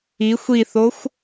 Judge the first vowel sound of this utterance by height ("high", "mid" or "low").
high